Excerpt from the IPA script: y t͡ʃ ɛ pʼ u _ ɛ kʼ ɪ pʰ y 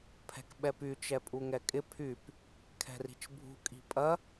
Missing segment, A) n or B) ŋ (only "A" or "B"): B